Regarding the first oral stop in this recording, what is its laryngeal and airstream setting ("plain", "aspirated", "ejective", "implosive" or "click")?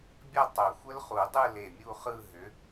plain